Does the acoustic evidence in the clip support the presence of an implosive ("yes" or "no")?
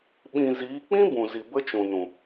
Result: yes